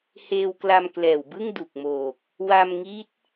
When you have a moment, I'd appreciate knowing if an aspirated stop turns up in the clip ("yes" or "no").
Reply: no